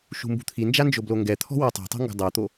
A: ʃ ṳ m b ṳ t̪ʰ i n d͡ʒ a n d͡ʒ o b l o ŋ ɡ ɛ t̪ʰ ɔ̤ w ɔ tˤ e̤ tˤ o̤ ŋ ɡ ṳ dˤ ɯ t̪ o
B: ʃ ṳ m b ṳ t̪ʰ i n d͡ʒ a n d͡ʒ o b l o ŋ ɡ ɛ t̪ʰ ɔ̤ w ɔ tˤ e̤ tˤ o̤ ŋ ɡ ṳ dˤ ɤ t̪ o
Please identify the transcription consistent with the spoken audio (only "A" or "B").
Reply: B